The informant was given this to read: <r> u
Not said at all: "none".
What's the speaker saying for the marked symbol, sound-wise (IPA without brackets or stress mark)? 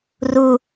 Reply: r